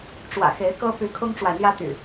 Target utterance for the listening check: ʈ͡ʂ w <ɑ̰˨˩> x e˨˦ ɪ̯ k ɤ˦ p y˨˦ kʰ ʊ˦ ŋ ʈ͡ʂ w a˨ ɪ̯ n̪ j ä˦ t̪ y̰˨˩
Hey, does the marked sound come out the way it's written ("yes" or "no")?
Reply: no